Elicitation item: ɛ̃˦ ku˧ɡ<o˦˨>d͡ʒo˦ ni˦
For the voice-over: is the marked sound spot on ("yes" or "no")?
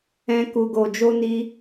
no